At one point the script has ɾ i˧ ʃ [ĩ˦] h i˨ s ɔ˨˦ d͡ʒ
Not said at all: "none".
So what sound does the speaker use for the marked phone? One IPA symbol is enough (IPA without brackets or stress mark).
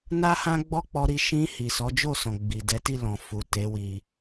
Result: ĩ˧